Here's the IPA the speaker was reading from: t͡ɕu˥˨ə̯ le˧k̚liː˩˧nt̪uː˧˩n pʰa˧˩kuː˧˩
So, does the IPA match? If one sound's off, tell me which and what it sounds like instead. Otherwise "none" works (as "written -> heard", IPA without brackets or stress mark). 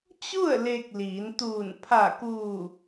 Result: none